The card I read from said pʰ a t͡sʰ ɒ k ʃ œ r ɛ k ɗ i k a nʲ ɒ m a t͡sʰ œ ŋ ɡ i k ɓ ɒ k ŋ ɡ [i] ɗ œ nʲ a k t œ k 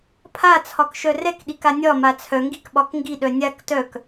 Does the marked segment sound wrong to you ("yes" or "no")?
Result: no